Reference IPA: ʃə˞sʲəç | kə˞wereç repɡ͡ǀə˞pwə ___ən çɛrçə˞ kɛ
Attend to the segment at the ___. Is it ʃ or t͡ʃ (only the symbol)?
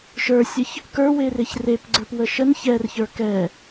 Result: ʃ